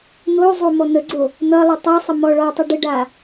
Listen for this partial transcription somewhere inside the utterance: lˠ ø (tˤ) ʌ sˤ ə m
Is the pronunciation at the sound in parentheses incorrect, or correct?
correct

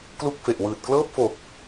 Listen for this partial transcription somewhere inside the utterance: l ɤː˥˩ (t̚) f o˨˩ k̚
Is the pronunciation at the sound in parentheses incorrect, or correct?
incorrect: p̚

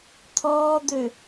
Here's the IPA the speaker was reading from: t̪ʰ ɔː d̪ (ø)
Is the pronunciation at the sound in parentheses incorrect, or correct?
correct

